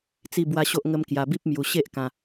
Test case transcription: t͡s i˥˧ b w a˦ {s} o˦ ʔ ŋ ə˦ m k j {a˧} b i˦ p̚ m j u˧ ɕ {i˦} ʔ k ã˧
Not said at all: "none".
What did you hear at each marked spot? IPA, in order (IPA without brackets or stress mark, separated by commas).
ɕ, a˧, e˦